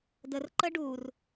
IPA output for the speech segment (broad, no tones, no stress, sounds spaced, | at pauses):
d ə r ǃ ə ɖ u r